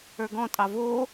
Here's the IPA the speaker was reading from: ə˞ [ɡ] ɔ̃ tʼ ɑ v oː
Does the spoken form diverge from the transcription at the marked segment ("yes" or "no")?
no